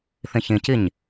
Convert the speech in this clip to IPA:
θĩçĩciɲ

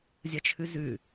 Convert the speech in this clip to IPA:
zʲɐt͡ʃʰʉzʉ

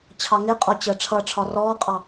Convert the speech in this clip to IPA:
t͡ɕʰɑŋɪqʼɔ t͡ɕəːʈ͡ʂʰʌʈ͡ʂʰɒ rɔːqʼɑ

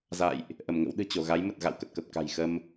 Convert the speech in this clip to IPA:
za̰˧˨jʔ | ʔə˧˩mŋə̰˧˥w ɗɨ̤˨˩t͡ɕo˧˩ɣa˨˦j mə˨˩t̚ɣa̰˧˨w kə˨˩t̚kə˨˩p̚ ka̤˨˩jxə˧m

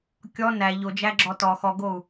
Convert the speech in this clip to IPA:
kʲɔ næ ʎod͡ʒæɡ͡ǁɔ tɔ xɔɡou̯

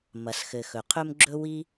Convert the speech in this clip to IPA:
mɐ˨sxɘ˨xɵ˨ qʰɵ˦mɡ͡ǁɵ˦wi˦

